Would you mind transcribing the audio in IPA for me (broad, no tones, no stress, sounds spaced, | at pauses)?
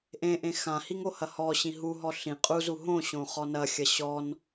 ʔ ẽ ʔ ẽ x ã h i ŋ o h ɐ h ɔ ɕ ĩ ɦ u ɦ ɔ ɬ ĩ qʼ u z u ɦ õ ɕ õ χ ɔ n ɐ xʲ ɐ ɕ ɔ n